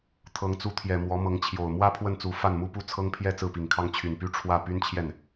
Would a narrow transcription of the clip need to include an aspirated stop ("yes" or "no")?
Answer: yes